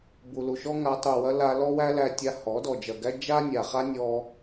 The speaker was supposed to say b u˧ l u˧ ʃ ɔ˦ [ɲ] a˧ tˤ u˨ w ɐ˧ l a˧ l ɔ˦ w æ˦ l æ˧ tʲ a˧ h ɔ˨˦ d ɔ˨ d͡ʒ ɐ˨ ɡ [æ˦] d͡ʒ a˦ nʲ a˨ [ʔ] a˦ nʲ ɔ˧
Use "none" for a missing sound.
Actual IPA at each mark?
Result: ŋ, æ˦, χ

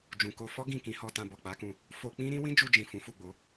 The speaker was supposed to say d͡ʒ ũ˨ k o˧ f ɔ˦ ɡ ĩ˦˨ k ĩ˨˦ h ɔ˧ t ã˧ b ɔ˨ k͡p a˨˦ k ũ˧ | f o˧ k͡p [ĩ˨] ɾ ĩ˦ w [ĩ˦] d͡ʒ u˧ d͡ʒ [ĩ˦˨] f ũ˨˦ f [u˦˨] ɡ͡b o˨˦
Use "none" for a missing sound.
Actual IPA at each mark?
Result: ĩ˦, ĩ˦, ĩ˨, u˦˨

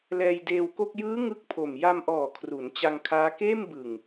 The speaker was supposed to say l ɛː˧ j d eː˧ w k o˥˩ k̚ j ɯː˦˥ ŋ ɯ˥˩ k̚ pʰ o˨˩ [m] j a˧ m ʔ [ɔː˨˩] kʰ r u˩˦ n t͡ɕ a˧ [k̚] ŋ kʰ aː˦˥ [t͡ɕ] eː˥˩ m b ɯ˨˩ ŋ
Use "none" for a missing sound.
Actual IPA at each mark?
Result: m, ɔː˨˩, none, k

